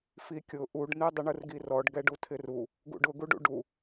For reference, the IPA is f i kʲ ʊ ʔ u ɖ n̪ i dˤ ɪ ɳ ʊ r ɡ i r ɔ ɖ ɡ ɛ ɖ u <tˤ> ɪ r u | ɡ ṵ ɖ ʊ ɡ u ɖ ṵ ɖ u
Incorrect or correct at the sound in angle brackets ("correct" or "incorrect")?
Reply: incorrect